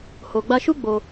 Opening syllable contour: low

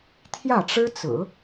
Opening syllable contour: falling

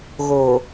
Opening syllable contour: low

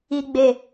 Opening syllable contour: low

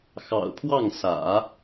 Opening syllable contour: low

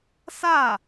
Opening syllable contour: falling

